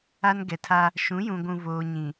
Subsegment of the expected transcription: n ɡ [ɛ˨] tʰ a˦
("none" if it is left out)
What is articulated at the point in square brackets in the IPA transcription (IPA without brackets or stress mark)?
ɛ˨